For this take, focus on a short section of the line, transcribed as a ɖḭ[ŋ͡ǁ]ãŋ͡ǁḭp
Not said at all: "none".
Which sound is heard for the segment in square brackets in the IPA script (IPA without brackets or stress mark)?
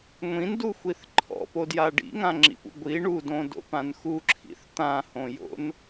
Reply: ŋ